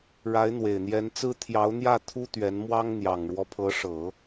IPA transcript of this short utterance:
ɻ a˧˥ ɪ̯ n̪ w e˨˩ ɪ̯ n̪ j ɛ˧˥ n t͡s ɹ̩˥ t̪ʰ j ɑ˧˥ ʊ̯ n̪ j ä˥˩ t̪ʰ u˥ t̪ ɥ ɛ˧˥ n m w ɑ˥ ŋ n̪ j ɑ˨˩ ŋ ɻ w ɔ˦ pʰ ɤ˧˥ ʂ ɤ˨˩˦

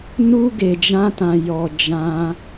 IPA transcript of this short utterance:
n u˦ ɡ e˧ d͡ʒ ã˦ t ã˧ j ɔ˧ d͡ʒ ã˦

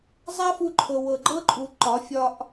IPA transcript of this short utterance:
zˤ a˦ f u˧ ǃʰ ɤ˨ w ɤ˨ ɡ͡ǃ ɤ˦ ǃʼ u˨ ǃ ɒ˨˦ fʲ ɒ˦ ʔ

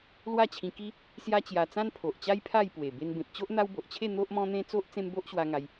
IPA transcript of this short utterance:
l w a˥˧ t͡ɕʰ ĩ˧ k i˦ | s j a˦ t͡ɕ j a˧ t͡s ã˦ n pʰ o˨ ʔ t͡ɕ a˦ j pʰ a˥˧ j p w e˨˩ b e˧ n b ẽ˨ p̚ t͡ɕ o˦ ʔ n̪ a˦ w b o˨ ʔ t͡ɕʰ e˥˧ n̪ o˦ ʔ m ɔ̃˦ n̪ ẽ˦ t͡s o˦ ʔ t͡s ẽ˦ m b o˦ ʔ ɕ w a˦ ŋ a˧ j

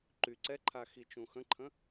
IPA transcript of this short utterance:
ǃ y ǀ ɛ ǃʰ a x i t͡ʃ ũ x ə̃ ǃʰ ə̃

